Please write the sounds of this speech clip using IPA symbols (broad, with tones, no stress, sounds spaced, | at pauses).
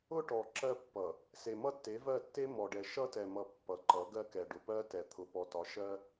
ʊ˦ ʈ ɔ˨ ǁ ɜ˦ pː ʌ˨ | s e˨ m ʌ˦ tː e˨˦ v ɜ˦˨ tː e˦ m ɔ˨ ɖ ɛ˨ ʃ ʌ˦ t ɛ˨ m ʌ˨ pː ʌ˨ ǃ ʌ˨˦ ɡ ɜ˦ k ɛ˨ ɖ ʊ˨ p ɜ˦ t ɛ˨ t̪ʰ ʊ˨ p ɔ˨ t ɒ˨˦ ʃ ɜ˦